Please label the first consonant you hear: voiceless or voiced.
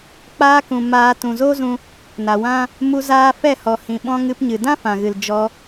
voiceless